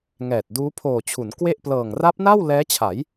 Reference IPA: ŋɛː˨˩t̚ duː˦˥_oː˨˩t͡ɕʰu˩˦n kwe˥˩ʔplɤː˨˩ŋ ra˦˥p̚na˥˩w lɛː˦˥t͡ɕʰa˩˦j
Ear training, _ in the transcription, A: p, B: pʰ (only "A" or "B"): B